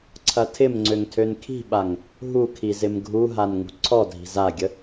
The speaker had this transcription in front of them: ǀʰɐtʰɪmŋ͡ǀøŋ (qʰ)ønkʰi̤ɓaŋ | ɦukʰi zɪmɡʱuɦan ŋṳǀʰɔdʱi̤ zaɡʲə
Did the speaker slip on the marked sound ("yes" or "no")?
yes